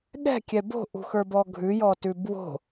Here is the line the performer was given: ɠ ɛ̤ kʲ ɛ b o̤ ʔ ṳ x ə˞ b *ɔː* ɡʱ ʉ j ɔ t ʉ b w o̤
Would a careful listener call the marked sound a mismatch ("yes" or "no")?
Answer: yes